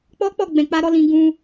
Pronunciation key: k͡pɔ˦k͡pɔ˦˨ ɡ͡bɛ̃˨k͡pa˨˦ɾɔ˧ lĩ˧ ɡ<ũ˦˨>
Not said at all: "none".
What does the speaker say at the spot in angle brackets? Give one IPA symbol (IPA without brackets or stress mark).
ũ˧